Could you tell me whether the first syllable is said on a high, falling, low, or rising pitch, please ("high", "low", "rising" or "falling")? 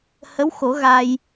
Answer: rising